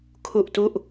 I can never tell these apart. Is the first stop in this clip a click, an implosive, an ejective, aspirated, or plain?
aspirated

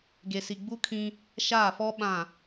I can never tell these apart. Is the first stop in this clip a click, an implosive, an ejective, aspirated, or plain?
plain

